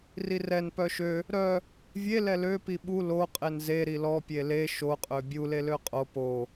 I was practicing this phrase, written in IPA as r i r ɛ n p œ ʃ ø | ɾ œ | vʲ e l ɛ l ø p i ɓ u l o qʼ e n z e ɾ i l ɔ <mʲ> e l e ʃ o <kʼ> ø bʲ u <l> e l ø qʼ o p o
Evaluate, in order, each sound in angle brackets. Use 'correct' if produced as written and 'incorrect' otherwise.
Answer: incorrect, incorrect, correct

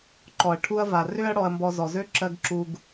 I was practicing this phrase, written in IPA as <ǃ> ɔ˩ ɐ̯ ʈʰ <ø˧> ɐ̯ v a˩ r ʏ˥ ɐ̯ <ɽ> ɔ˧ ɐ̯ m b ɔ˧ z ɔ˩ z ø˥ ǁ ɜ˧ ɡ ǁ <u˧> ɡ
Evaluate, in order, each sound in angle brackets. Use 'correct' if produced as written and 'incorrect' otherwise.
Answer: correct, incorrect, correct, correct

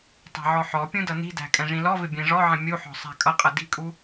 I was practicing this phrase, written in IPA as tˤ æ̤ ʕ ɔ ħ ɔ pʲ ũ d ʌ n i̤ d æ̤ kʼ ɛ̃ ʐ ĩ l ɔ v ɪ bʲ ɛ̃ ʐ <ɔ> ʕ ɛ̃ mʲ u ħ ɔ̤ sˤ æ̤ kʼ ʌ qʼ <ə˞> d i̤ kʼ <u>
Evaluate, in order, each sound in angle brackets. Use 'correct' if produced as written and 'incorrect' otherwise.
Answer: correct, incorrect, correct

